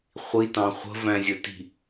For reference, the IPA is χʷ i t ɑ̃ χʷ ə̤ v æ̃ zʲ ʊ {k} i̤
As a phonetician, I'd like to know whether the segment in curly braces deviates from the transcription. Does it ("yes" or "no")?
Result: yes